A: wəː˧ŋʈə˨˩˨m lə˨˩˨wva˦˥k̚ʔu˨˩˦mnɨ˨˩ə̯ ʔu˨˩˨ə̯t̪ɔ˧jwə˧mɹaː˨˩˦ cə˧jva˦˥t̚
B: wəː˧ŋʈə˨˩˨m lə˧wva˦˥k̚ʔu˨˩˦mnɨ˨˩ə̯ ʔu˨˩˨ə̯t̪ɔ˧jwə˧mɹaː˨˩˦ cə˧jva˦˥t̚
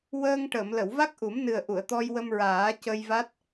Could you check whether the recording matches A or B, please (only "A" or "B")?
A